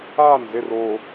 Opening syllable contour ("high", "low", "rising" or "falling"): falling